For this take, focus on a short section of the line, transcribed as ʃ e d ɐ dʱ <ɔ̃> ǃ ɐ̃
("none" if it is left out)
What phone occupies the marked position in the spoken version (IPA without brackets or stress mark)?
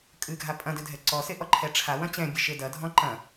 ɔ̃